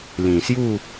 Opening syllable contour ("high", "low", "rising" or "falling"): low